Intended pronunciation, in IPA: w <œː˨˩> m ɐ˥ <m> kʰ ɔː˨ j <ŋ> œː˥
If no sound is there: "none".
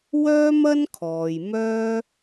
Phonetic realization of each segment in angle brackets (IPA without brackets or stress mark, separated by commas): œː˥, n, m